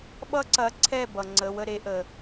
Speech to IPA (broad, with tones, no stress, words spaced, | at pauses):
ɓʌ˦ǀɐ˨˦ ǀʰɛ˥˩bʌ˩ ŋ͡ǀə˩˧˩wə˥˩ɾe˨˦ʔə˩